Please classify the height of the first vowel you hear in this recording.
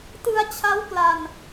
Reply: high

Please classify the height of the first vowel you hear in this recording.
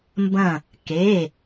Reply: low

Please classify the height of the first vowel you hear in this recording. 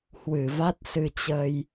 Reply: high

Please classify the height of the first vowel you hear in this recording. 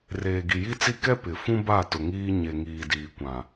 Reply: mid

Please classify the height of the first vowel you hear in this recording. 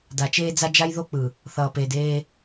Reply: low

